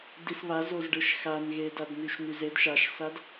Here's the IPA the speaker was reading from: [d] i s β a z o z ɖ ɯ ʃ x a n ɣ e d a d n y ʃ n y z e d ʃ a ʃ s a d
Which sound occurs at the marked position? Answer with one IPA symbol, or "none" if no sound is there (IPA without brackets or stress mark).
d